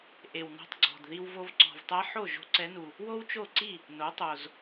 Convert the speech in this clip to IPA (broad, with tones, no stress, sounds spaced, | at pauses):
ʔ e˨˩ w n ɔ̤˧ tˤ ɡ͡ǀ ɔ̤˨˩ d ð i˧ w v o˧ v ǀ ɔ̤˨˩ v tˤ ɛ˧˥ ħ o˥˩ ʒ o̤˧˥ ǀ ɛ˧˥ n u˨˩ | w o˥ w t͡ʃ o˥˩ ǀ i˥˩ | n o˩˥ tˤ o˨˩ z